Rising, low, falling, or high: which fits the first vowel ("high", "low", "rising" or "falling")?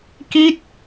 falling